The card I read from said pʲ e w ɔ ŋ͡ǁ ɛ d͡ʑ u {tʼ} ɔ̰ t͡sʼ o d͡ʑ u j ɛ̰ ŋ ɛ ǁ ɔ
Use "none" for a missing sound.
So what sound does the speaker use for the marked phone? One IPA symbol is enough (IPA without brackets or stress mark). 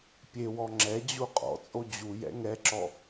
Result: qʼ